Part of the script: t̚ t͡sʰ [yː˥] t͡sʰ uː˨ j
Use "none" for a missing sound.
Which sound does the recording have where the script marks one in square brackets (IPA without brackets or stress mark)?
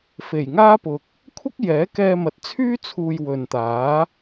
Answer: yː˥